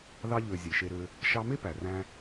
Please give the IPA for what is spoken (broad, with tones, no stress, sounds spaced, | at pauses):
ð ɑ˧ ʎ ø˨ zʲ e˨ ʃ e˧ ɾ ø˧ | ʃ ɑ˧ m e˦ p æ˨ r æ̃˧